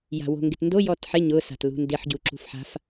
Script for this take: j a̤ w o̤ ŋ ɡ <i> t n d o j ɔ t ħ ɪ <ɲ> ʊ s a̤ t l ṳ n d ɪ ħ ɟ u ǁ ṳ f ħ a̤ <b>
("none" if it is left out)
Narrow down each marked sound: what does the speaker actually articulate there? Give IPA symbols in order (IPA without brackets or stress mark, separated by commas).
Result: ɪ, ɲ, f